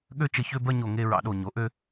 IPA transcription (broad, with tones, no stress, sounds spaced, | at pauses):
ɠ ø˥˧ t͡ʃ ə˧˩ ç ø˥˧ b ɜ˥˧ ɲ o˧˩ ŋ e˥˧ ɹ ɑ̰˧ ɗ o˧˩ ɲ o˩˧ ʔ ø˥˧